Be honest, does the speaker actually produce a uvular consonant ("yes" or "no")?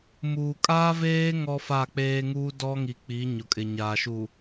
no